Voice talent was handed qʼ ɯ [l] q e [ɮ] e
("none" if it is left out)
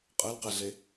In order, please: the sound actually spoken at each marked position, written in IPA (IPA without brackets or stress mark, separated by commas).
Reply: l, ɮ